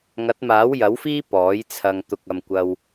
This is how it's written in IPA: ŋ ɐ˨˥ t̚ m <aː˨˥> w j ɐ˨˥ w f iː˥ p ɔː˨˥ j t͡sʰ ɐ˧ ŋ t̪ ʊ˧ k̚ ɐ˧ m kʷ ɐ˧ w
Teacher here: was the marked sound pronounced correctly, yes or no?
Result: yes